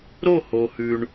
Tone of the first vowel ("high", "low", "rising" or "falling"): falling